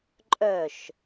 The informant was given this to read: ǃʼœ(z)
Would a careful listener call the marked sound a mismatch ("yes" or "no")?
yes